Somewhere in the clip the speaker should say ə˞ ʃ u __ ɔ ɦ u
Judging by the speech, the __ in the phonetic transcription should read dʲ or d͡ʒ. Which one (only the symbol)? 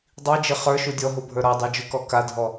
dʲ